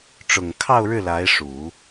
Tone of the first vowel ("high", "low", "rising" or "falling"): low